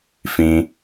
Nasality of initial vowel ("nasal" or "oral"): nasal